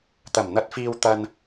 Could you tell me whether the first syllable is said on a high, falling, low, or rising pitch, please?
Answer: low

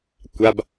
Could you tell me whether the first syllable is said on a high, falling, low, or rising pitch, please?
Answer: low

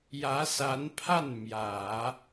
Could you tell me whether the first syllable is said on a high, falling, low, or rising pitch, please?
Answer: rising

